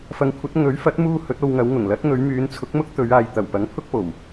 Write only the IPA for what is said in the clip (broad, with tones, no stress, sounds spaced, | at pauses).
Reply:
f ɐ˨˧ ŋ kʷʰ ɐ˨˥ t̚ ŋ ɵ˨˥ ɥ f ɐ˨˥ t̚ m uː˧ h ɵ˨˥ t̚ o˧ w ŋ ɐ˨˧ w ŋ ʊ˨˩ ŋ l ɐ˨˥ t̚ ŋ ɵ˨˧ ɥ m yː˨˧ n t͡sʰ ʊ˨˥ k̚ m ʊ˥ k̚ t̪ ɵ˨˧ ɥ aː˧ j t̪ ɐ˨˩ w p ɐ˨˥ ŋ pʰ ʊ˥ k̚ p o˨˩ w